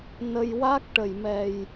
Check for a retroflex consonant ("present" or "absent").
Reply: present